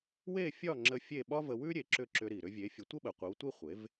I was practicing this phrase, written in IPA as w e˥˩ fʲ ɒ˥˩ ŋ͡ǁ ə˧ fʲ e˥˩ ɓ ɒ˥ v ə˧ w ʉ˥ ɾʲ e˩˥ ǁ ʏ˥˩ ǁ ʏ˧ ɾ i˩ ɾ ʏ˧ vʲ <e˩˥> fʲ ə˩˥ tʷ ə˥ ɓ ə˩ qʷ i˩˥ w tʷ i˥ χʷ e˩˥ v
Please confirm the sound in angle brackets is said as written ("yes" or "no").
yes